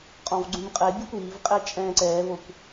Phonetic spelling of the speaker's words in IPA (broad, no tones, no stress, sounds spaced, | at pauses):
qʼ ɔ̃ v ɡ͡ǀ ũ m qʼ ɛ bʲ ɘ kʷ iː v qʼ ɛ t͡ʃʼ ɛ̃ː ǀ ɛː v o kʷ